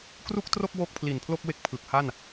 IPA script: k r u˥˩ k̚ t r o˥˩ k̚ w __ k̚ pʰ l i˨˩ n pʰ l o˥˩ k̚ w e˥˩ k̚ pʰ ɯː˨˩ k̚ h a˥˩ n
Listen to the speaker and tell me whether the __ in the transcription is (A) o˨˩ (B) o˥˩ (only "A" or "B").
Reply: B